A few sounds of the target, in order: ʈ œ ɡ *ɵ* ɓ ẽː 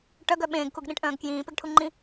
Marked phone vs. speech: incorrect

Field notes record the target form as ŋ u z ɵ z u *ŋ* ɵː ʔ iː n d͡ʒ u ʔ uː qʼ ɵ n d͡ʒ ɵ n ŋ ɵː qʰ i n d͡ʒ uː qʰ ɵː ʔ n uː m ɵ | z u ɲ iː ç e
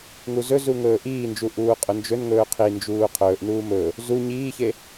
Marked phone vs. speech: correct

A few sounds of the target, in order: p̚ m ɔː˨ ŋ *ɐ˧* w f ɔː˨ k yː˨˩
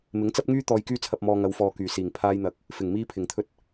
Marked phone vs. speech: incorrect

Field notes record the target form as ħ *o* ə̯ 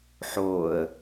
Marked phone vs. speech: correct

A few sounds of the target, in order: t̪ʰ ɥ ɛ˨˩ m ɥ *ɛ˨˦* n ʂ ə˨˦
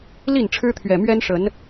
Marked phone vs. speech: incorrect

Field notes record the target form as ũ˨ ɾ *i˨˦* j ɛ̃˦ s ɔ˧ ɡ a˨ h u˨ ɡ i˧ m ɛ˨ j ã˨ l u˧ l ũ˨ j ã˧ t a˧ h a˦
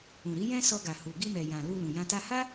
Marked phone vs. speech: correct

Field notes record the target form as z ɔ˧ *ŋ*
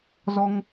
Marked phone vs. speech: correct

